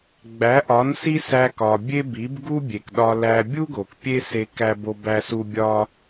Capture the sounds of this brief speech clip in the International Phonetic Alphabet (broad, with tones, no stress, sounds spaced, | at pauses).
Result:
ɡ͡b æ˩˥ ʔ ɒ˩˥ n s i˥ s æ˧ k ɒ˩ bʲ e˥ b i˩˥ b ɡ u˥ bʲ e˩ k ɗ ɒ˧ l æ˧ bʲ u˥ ɡ o˩ k pʲ e˥ s e˧ k æ˥ b o˥ b æ˥ s u˥ bʲ ɒ˥